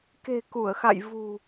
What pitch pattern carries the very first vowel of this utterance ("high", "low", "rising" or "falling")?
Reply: low